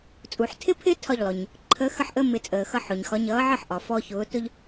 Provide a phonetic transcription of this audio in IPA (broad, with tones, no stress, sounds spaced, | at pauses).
t͡sʼ u˩ ħ tʰ ɪ˦ pʰ ɪ˦ tʰ ɒ˥˨ ʎ lˠ ʊ˩ ɲ | ǃʰ ə˨˥ x ə˥˨ ħ ʔ əː˦ m ɪ˨˩˦ t͡sʼ əː˩ x ʌ˦ ħ ʊ˩ ɲ x ɒ˨˥ ɲ ʌː˨˥ ʕ ə˥˨ ħ ʔ ɒ˩ f ɔ˦ ç ʊː˨˥ t ʊ˦ ʎ